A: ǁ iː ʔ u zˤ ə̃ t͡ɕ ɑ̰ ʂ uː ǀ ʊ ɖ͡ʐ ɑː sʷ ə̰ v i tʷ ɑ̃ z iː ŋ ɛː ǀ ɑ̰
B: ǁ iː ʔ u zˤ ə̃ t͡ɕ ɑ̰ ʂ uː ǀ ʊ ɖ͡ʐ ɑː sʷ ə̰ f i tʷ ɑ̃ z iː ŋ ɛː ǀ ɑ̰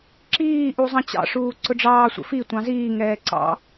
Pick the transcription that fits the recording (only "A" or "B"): B